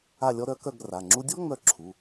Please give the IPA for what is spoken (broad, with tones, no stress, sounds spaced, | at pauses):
a˥˧ lʲ ɔ˥ ɾ œ˧˥ k œ˥˧ ɡ r a˩˧˩ ŋ͡ǁ u˥ dʲ ɔ˥ ŋ͡m œ˥˧ ǁʰ u˩˧˩